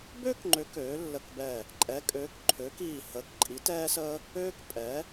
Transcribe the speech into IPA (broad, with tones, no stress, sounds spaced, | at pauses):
b ø˥ k ŋ͡ǃ ø˨˥ k øː˨˥ lː ə˦˨ k b ɛ˦˨ | ǃʼ ɛ˨˥ kʼ øː˨˥ k ǃʰ øː˨˥ k iː˦˨ h əː˨˥ k ǃʼ i˨˥ t ɛː˥ s əː˥ | øː˥ k pʼ ɛ˨˥